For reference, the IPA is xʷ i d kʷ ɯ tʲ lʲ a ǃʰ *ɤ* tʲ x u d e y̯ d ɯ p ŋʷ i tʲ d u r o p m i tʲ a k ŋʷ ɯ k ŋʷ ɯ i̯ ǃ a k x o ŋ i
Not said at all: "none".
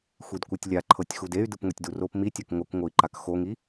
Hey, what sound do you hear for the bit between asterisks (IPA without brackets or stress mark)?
ɤ